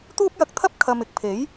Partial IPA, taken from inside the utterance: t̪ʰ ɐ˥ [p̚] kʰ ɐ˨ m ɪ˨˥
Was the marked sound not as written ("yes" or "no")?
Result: no